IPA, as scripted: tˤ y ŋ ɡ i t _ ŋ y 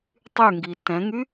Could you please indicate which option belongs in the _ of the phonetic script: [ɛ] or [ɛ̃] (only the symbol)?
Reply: ɛ̃